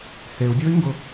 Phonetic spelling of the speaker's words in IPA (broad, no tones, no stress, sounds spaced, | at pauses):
h e u̯ dʲ o i̯ ŋ ɡ ʊ